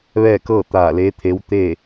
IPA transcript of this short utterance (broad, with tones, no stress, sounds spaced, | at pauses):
ʋ ɛː˥˨ k ɤː˥˨ t̪ aː˧˩ l eː˧˥ t̪ʰ e˧˥ w t̪ eː˥˨